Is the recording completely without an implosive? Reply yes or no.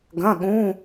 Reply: no